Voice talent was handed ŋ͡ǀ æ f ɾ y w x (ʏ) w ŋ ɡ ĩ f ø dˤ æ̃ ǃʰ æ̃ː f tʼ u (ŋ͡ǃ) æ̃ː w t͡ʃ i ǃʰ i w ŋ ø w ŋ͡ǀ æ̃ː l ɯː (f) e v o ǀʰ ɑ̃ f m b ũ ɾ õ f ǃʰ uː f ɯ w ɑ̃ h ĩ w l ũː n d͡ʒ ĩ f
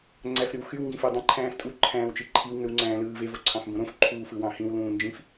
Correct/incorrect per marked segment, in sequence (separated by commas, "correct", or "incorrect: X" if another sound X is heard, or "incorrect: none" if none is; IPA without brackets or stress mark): incorrect: y, incorrect: ǃʰ, incorrect: v